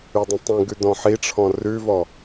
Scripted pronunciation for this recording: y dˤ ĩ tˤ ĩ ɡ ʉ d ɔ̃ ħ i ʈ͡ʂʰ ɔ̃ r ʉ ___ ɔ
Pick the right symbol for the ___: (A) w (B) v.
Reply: B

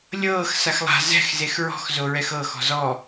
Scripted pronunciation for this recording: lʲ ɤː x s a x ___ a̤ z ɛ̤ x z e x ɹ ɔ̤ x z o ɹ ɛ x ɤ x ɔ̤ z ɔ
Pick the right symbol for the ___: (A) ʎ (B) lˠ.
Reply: B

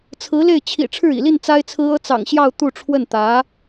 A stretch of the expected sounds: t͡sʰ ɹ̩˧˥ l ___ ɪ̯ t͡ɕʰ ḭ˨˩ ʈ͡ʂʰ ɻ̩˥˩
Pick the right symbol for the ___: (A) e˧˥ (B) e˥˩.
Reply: B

